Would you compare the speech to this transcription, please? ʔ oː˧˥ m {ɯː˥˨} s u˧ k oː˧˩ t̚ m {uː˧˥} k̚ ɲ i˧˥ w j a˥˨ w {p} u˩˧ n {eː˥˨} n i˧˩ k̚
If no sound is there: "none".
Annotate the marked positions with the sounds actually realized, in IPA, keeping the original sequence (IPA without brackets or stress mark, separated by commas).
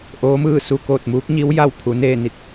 ɯː˥˨, uː˧˥, pʰ, eː˥˨